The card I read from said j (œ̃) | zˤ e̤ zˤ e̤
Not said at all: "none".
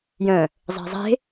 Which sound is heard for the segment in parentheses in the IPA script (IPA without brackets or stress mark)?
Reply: œ̃